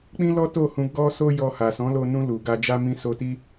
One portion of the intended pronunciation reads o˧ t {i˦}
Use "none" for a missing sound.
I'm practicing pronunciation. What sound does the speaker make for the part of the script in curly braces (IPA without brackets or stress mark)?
i˦